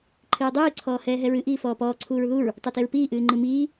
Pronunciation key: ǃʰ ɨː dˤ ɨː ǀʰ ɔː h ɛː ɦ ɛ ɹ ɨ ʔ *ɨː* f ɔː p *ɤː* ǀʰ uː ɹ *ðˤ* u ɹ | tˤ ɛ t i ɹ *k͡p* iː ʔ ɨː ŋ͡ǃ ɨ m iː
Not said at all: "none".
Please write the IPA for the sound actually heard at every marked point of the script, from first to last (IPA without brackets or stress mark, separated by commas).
iː, ɔː, ð, p